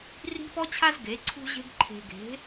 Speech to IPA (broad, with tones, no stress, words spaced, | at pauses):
ri̤˦pɔ˦t͡ɕʰa˦z ɡe˨˦ǀʰṳ˦ʑe̤˦ɡ ǃʰe̤˨ɡe̤˨˦